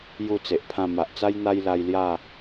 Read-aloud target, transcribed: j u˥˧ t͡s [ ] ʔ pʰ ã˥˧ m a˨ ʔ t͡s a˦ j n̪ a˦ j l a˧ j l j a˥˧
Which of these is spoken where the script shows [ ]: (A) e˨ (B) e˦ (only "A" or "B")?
A